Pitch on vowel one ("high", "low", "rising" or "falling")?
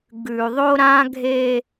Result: low